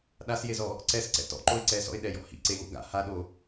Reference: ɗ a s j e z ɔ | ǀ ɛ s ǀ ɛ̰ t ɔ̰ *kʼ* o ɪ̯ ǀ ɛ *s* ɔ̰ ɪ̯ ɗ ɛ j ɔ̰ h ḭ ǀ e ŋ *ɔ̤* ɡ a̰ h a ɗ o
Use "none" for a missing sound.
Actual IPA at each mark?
ǃ, s, ɔ̰

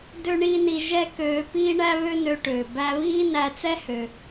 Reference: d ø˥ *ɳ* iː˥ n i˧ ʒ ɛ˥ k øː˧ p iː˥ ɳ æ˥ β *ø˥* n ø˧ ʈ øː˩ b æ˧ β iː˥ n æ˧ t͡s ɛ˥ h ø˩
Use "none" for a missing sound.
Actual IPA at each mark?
ɳ, ø˥

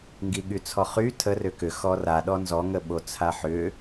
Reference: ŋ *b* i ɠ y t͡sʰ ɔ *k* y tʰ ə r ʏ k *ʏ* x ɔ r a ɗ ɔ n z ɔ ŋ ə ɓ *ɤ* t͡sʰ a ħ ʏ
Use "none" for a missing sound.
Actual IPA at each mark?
ɡ, χ, ʏ, o

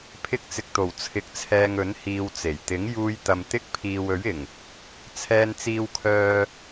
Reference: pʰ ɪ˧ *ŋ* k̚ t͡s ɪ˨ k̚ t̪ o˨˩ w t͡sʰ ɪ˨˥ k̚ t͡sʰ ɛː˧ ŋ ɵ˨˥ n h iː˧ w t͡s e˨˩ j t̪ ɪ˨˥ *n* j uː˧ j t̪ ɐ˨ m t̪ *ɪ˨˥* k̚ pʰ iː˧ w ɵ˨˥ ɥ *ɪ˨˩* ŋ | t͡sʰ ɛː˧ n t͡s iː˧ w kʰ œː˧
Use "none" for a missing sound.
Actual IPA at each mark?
none, ŋ, ɪ˥, ɪ˨˩

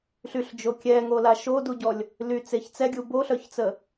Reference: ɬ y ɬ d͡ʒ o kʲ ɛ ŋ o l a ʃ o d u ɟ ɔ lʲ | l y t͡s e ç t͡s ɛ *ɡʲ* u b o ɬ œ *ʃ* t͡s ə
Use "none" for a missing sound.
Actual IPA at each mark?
ɡʲ, ç

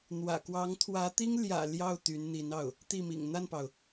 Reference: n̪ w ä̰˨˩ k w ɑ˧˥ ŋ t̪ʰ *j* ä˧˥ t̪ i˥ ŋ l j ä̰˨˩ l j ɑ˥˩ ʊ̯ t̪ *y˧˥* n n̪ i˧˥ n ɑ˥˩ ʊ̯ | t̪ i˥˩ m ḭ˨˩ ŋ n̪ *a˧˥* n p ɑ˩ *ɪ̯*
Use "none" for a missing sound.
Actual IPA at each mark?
w, y˧˥, a˥˩, ʊ̯

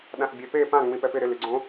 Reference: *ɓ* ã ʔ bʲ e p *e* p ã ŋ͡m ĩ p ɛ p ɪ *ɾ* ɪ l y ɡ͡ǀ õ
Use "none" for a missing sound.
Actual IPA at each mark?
ɗ, e, ɾ

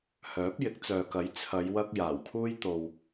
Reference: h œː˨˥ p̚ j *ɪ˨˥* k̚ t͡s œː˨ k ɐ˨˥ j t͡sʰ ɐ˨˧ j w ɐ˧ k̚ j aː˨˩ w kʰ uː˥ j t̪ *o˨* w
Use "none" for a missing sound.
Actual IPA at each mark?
ɪ˨˥, o˨

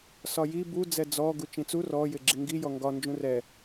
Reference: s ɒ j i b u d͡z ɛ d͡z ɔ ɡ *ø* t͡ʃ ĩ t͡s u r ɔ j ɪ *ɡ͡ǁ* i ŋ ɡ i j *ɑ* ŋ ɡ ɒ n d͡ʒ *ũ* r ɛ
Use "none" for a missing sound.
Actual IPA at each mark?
u, ɡ͡ǁ, ɔ, ũ

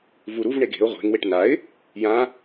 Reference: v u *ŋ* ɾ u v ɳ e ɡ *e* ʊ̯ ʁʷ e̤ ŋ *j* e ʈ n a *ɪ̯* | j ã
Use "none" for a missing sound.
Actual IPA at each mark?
none, e̤, w, ɪ̯

